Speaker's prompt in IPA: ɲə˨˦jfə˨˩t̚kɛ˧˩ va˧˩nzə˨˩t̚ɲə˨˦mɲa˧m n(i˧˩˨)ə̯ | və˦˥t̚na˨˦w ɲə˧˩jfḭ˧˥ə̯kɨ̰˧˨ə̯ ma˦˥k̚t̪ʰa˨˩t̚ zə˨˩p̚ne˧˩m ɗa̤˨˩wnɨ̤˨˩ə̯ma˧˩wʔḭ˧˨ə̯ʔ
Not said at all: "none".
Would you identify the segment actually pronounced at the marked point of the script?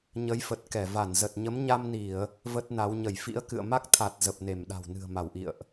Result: i˧˩˨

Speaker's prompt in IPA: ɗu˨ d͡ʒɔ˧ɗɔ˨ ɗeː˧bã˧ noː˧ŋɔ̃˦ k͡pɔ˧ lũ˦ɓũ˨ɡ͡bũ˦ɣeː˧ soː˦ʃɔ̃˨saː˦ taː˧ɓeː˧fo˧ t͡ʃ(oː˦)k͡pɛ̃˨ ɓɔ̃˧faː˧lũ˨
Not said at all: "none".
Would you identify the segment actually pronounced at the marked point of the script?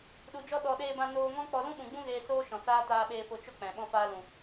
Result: o˦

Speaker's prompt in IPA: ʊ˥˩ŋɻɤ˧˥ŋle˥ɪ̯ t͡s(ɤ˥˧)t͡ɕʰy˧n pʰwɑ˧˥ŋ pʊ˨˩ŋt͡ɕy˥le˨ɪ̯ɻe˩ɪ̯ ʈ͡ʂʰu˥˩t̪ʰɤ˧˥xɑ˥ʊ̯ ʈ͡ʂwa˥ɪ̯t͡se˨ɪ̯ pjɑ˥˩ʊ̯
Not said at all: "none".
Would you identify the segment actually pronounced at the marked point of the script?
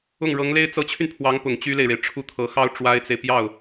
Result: ɤ˧˥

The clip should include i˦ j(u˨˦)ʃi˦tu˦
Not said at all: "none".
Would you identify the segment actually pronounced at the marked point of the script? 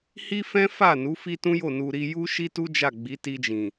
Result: u˦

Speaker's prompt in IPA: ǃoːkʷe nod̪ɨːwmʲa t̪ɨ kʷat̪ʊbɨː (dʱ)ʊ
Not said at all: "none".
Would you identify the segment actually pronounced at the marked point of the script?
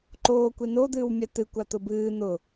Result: n̪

